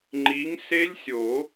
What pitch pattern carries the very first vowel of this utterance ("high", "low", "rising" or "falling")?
rising